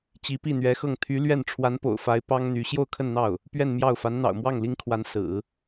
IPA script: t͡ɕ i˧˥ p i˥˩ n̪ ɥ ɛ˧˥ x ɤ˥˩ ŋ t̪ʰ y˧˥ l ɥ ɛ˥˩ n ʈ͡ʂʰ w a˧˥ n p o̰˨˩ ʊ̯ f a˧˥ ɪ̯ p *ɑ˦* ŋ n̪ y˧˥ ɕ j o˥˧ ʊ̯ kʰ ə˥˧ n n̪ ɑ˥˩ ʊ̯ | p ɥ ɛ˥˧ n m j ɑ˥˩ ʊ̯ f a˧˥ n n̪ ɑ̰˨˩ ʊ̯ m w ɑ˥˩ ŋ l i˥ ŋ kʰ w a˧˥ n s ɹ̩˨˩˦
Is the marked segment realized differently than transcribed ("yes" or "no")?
yes